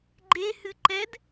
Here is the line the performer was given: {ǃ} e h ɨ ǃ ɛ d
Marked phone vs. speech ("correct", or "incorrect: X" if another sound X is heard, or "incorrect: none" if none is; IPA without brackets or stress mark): incorrect: ɡ͡ǃ